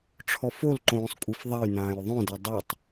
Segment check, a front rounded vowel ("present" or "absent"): absent